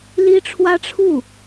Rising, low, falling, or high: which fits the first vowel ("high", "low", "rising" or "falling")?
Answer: high